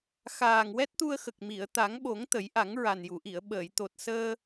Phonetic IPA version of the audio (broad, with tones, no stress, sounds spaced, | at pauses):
x aː˨˩ ŋ w ɛ˦˥ t̚ t̪ u˧ ə̯ x ə˨˩ k̚ m i˨˩˨ ə̯ t̪ a˨˩˦ ŋ ɓ o˨˩˦ ŋ t̪ ə˨˩˦ j ʔ a˨˩˦ ŋ ɹ a˨˩ n j u˨˩˨ ʔ i˨˩˨ ə̯ ɓ əː˨˩˨ j t̪ o˨˩ t̚ s əː˧